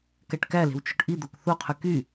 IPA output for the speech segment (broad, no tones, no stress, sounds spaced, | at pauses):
k æ ʈ k æ l e̤ w t͡ʃ o̤ ʈ ʔ i d̪ o k θ o qʰ y k y